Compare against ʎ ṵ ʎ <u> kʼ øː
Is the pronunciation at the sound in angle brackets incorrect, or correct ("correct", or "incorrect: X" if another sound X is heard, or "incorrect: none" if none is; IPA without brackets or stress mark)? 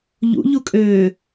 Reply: correct